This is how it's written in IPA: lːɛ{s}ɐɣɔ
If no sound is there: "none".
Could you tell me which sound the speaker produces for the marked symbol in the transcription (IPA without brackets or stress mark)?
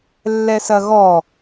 s